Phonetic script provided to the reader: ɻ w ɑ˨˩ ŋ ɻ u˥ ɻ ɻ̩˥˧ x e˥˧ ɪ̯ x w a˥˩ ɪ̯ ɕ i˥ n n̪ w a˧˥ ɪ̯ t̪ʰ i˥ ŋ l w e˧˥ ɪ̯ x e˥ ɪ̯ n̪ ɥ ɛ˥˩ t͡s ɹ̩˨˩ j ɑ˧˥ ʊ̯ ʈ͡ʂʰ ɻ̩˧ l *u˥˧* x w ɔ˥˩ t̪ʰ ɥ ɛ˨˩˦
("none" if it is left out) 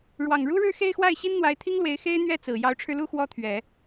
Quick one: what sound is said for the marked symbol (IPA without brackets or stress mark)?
u˥˧